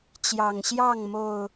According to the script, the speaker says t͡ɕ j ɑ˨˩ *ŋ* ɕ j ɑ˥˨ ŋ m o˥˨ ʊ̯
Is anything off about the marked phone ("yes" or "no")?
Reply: no